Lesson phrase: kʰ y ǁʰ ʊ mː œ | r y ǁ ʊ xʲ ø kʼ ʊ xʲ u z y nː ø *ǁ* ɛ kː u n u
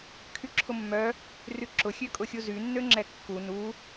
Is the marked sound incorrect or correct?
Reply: incorrect